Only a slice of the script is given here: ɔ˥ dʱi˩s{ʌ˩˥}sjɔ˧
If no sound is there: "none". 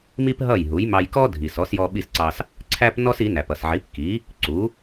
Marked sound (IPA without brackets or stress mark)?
ɔ˩˥